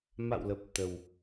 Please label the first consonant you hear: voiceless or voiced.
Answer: voiced